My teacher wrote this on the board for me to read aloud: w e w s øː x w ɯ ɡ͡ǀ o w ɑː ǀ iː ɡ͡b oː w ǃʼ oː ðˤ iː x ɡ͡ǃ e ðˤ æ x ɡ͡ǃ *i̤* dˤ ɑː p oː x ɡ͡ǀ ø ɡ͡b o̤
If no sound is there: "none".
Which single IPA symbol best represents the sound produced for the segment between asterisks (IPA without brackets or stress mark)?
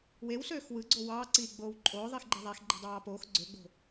i̤